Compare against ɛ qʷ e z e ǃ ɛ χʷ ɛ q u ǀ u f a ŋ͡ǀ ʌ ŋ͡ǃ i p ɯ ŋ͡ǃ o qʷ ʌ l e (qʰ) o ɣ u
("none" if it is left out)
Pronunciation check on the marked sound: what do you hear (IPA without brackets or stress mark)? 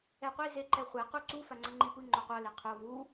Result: qʰ